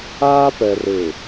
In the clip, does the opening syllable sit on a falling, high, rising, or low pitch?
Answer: high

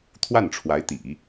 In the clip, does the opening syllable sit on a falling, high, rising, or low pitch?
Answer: falling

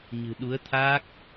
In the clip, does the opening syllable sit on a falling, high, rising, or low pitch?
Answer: low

